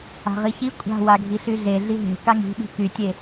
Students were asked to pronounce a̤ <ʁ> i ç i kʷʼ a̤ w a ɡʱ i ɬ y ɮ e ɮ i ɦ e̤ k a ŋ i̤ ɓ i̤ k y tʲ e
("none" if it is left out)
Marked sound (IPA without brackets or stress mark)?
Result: ʁ